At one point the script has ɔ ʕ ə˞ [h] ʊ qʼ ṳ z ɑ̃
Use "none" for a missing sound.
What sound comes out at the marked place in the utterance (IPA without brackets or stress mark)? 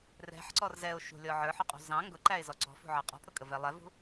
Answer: ħ